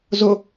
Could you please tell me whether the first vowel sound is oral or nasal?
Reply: oral